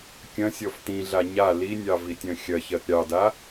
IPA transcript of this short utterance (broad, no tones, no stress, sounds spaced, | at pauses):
kʲ ɐ̃ sʲ ɔ f t ĩ ɮ a ɲ a l i nʲ ɑ v i tʲ ɐ̃ xʲ ɐ ç ɜ t ɾʲ ɑ d a